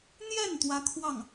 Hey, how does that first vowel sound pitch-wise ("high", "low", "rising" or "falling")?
falling